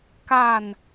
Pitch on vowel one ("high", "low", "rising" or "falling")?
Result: falling